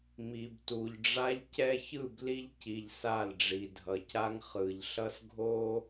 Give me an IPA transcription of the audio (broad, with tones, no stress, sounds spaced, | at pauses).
m i˨ b t u˨ ʎ ɖ͡ʐ a˦ ʎ c ɛ˦ ç ɯ˦˨ b l i˦ ʎ c i˨ ʎ s a˦˨ l ɖ͡ʐ i˨ dʱ ʌ˨ c a˦ ŋ χ ɯ˨ ʎ ɬ ʌ˦ s ɡʱ o˦